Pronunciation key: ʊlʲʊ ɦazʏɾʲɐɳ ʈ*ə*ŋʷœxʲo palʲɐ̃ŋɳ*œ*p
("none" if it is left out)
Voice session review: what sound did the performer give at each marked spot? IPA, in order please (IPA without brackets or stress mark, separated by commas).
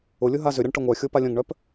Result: ə, œ